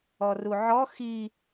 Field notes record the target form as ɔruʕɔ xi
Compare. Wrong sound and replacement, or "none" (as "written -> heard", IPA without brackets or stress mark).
none